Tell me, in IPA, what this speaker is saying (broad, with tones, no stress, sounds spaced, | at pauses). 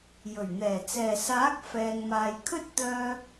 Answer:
j ɵ˨˩ ɥ n̪ ɛː˨˩ t͡s ɛː˨˩ s aː˨˥ k̚ f ɛː˨ ŋ m aː˨ j kʰ ɵ˥ t̚ t̪ œː˧